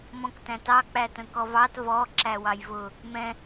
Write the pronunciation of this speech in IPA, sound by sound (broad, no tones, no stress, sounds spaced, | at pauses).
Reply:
m ɔ̃ k t æ̃ t ɑ k͡p æ t ə̃ k ɔ v ɑ t v ɔ ǁ æ w ɑ j v ʊ | m ɛ̃